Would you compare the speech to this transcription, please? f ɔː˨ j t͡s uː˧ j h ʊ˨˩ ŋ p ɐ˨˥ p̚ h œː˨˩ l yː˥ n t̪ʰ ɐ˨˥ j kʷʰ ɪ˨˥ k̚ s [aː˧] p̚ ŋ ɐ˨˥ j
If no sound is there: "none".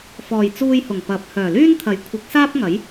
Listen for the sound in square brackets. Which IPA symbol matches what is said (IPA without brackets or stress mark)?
aː˥